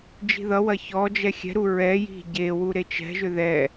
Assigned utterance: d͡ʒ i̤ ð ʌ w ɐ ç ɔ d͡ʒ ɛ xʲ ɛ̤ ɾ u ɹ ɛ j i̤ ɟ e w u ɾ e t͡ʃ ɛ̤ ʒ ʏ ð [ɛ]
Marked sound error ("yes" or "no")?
no